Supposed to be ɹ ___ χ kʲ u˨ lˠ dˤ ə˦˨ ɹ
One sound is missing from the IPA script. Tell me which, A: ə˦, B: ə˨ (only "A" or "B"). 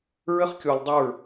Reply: A